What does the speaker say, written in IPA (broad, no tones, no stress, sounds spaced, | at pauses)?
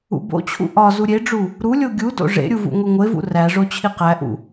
ṵ b o̰ t͡ɕʰ ṵ ʔ ɒ z u ɾʲ e ɖ͡ʐ u | ɾ u lʲ o ɡʲ u d o̰ ʐ ḛ ɾʲ u v ṵ ŋʷ i ŋʷ e v ṵ r æ ʐ o t͡ɕʰ i q æ ʔ ṵ